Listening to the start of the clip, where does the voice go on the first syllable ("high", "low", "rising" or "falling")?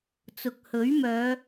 low